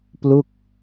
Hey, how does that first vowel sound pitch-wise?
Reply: falling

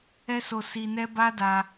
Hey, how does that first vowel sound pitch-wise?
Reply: high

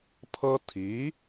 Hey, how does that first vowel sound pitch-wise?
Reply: high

